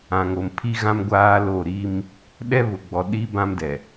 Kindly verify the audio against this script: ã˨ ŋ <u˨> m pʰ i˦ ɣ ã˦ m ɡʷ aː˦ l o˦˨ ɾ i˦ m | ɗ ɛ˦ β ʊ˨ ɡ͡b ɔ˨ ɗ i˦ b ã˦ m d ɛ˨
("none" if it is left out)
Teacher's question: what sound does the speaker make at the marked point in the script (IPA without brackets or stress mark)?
o˨